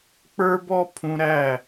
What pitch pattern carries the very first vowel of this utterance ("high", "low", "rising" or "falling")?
high